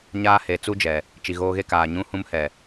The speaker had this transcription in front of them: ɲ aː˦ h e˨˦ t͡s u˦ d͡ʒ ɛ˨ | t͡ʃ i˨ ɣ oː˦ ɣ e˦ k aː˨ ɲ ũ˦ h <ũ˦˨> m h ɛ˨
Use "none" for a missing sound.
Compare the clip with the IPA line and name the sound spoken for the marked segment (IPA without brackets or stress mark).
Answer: ũ˦